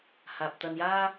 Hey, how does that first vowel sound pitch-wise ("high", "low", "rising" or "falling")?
low